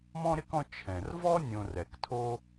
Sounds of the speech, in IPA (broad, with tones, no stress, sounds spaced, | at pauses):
m ɔ̃˥ ɾ ɪ˥ k ɔ̃˦ t͡ʃʰ ɛ̃˩ r v ɔ˥ nʲ õ˨ r ɛ˩ k tʰ o˦